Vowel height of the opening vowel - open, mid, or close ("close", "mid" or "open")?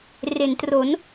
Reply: mid